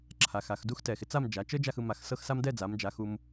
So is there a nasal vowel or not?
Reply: no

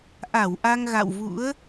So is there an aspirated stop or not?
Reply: no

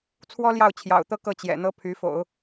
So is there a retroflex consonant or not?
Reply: no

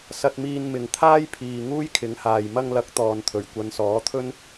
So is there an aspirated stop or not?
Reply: yes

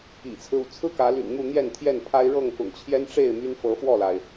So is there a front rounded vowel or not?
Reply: yes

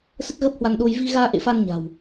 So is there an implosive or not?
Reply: yes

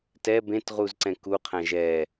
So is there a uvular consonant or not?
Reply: yes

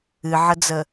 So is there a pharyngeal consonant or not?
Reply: yes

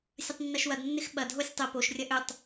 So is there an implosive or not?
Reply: yes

